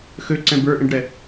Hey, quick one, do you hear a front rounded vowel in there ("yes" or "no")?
yes